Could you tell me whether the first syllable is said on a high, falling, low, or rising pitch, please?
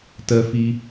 low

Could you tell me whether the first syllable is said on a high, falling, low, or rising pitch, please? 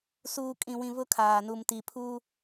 low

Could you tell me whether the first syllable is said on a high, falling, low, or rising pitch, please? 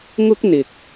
high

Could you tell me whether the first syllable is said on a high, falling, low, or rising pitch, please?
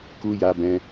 high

